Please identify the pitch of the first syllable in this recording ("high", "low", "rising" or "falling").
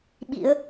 rising